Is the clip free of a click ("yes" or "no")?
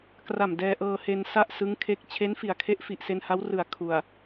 yes